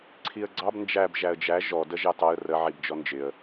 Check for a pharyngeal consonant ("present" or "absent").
present